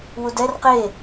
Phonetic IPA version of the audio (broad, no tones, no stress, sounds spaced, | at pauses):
w u d ɛ r q e